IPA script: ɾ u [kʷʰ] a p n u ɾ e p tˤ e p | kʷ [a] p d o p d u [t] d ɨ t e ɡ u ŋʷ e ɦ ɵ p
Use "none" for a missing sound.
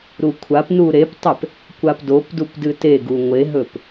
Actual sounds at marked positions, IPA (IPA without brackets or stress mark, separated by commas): kʷʰ, a, p